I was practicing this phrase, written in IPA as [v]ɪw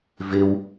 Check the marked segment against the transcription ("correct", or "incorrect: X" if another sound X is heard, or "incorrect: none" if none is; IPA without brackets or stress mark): correct